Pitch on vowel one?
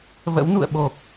rising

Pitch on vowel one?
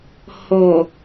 low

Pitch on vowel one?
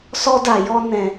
high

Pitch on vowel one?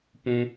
high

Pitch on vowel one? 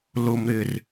low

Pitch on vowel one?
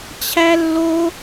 high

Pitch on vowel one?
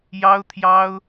high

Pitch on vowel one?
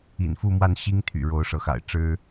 low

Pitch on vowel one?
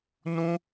high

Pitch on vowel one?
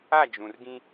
falling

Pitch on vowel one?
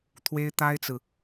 high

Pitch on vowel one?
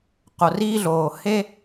low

